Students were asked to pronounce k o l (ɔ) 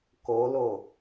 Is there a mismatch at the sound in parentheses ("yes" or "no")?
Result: yes